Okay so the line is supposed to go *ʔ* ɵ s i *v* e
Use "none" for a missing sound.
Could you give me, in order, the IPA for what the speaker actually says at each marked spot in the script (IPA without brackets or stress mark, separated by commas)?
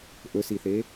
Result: ʔ, θ